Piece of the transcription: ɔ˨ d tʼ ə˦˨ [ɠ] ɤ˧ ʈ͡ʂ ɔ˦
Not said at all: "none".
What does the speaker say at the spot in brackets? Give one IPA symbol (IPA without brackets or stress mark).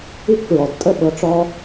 ɓ